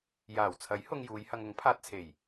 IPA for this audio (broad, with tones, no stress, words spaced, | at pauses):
jaː˨˩wt͡sʰɐ˨˥j hʊ˧ŋjuː˨˧jhɐ˧ŋ ʊ˨˥ŋpʰaː˧t̚t͡sʰe˨˩j